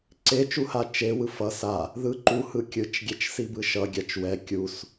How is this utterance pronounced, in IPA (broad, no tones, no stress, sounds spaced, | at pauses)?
ǀ e t͡ʃ u h a t͡ʃ e w ɯ f ʌ s a | ð ɯ ǃ u h ɯ kʲ ɯ t͡ʃ ɡʲ ɛ t͡ʃ s i b ɯ ʃ ʌ ɡʲ a t͡ʃ w ɛ kʲ u s